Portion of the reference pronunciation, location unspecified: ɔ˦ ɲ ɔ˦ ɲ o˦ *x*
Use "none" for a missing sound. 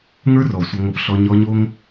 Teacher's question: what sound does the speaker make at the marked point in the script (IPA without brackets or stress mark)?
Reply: ŋ